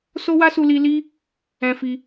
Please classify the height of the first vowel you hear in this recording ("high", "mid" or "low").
mid